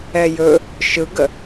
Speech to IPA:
ɛ j ɵ | ʃ ɯ ɡ ə

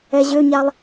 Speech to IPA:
ɛ ʑ ø ɲ a lˠ

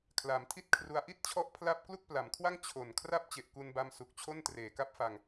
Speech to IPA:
kʰ l a˩˦ m tʰ i˥˩ t̚ kʰ r u˧ a̯ ʔ i˥˩ t̚ t͡ɕʰ ɔ˦˥ ʔ pʰ l a˥˩ p̚ k l u˥˩ k̚ p l a˩˦ m kʰ w a˥˩ ŋ t͡ɕʰ o˨˩ n kʰ r a˥˩ p̚ t͡ɕ e˨˩ ʔ k u˧ n b a˧ m s u˨˩ k̚ t͡ɕʰ o˥˩ n t r eː˩˦ k a˦˥ p̚ f a˧ ŋ

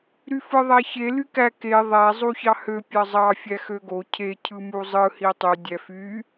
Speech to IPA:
ɾ y f ɯ ðˤ æ ç e l y k æ k e ðˤ æ zˤ u ç ɑ h ø pʲ ɑ zˤ ɑ fʲ æ x ø ɡ o cʰ e cʰ ɯ m u zˤ ɯ h i tˤ y dʲ æ f y

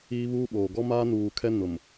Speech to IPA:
iː˦ β uː˦ ɓ oː˨ ɡ ɔ˦ m aː˦ n uː˨ kʰ ɛ˦ n ʊ˨ m

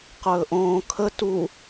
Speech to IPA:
q ɵː ʔ õː kʰ ə t u

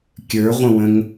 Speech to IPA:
kʲ ə˞ ʁʷ ə̃ w ə̃ ŋ

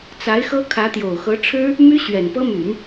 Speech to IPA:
t͡s a˧˥ ɪ̯ x ɤ˥ kʰ ä˧˥ t̪ j o˨˩ ʊ̯ x ɤ˧˥ ʈ͡ʂʰ ɻ̩˥ | m y˥ ɕ ɥ ɛ˨˩ n p ɤ˥ m y˨˩˦ n

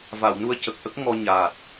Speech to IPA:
v a˨˩˨ w n u˧ ə̯ c ə˨˩ k̚ ʔ ə˦˥ k̚ ŋ ɔ˧ ɲ aː˨˩ t̚

